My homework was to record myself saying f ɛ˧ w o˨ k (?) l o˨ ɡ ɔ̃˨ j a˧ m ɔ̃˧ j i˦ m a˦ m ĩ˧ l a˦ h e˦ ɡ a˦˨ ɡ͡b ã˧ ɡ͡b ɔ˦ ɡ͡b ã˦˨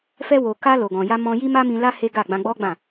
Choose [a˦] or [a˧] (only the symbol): a˧